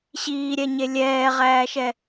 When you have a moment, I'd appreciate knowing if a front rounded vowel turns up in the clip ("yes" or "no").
no